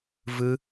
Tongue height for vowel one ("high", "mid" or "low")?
high